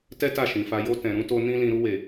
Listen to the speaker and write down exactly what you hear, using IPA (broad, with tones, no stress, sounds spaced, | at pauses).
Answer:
t ɛ˦ t a˦˨ ʃ ĩ˨ f a˧ j o˧ t ɛ̃˨ ɾ ũ˨˦ t o˧ n ĩ˦ l ĩ˧ ɾ u˧ w e˨